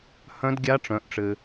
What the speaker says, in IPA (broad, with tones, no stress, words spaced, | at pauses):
hœ̃˦˥dɡʲa˦˥ʈ͡ʂœ̃˨˦ʔʈ͡ʂɘ˨